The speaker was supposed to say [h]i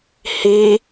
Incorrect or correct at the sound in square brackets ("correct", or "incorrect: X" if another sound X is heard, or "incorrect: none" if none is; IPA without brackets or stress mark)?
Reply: correct